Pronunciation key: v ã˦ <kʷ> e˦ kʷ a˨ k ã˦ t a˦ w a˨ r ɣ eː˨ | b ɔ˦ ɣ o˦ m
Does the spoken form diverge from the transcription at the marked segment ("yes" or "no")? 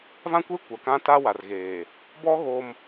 no